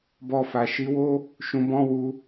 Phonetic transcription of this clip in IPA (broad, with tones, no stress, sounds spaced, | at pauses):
b ɔ˧ f a˨ ʃ i˨˦ w o˦ | ʃ ũ˧ b ɔ̃˦ w u˧